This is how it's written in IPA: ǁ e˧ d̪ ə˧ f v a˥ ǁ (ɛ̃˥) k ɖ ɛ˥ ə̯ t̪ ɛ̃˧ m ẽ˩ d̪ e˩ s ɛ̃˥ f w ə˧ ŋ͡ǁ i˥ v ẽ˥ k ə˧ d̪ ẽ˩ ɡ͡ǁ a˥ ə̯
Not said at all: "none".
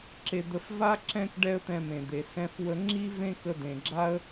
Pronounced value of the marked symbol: ɛ̃˥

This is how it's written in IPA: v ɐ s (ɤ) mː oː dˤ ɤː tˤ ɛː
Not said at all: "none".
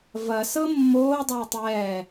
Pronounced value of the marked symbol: ɤ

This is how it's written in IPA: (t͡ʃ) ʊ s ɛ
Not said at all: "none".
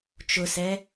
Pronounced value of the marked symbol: t͡ʃ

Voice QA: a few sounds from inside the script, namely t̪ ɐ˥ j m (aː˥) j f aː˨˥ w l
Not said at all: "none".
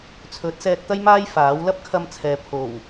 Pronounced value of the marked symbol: aː˥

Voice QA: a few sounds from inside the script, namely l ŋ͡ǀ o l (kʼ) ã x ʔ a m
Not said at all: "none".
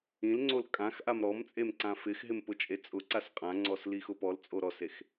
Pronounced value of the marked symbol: kʼ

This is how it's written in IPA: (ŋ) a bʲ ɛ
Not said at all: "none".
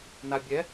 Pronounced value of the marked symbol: n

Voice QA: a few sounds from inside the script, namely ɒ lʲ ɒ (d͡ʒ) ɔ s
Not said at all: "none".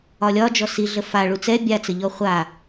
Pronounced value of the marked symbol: d͡ʒ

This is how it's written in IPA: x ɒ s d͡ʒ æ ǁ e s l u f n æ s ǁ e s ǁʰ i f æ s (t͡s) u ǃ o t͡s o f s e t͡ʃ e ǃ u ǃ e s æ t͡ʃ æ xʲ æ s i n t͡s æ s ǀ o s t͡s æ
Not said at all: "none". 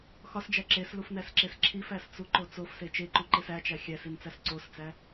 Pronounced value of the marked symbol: t͡s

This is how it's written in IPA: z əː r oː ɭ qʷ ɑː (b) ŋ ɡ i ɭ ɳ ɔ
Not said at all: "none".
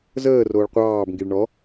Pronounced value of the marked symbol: b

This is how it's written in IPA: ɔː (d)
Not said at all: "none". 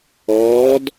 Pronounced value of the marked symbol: d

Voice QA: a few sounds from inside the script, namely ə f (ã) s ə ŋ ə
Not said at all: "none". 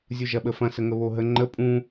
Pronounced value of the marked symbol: ɐ̃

